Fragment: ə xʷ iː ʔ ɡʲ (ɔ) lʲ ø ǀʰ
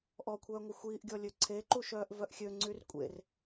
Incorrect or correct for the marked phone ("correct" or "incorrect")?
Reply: correct